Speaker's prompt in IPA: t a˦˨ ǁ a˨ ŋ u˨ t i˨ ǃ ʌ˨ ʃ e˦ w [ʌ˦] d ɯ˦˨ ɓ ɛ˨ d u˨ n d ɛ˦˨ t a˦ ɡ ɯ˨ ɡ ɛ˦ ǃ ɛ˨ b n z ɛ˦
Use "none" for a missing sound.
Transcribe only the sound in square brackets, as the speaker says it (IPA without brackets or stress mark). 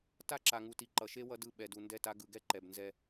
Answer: ʌ˦